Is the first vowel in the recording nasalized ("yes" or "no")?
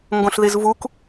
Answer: yes